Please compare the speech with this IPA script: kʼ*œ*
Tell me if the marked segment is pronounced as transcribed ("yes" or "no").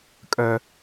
yes